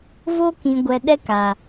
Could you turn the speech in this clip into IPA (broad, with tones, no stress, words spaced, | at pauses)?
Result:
vo˦ kĩ˧ɡʷɛ˧ ɗɛ˦ka˨